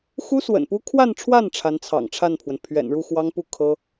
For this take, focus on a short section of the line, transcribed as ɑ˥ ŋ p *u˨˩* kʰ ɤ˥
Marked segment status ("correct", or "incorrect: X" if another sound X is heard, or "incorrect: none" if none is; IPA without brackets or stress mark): incorrect: u˥˩